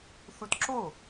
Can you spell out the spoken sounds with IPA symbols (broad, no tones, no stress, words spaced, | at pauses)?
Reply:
θutǁo